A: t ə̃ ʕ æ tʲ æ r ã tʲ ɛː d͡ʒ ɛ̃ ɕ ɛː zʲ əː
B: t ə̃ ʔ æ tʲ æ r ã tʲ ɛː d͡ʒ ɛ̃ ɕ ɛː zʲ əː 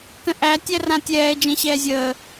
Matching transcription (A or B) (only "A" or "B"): B